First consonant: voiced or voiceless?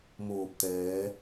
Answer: voiced